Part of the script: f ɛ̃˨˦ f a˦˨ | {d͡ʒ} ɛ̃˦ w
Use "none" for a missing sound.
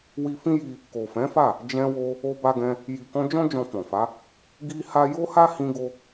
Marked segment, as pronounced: d͡ʒ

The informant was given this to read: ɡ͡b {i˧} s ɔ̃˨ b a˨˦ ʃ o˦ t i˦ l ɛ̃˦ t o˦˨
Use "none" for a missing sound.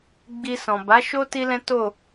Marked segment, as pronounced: i˧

